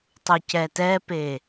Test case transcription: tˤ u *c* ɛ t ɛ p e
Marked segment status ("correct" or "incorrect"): correct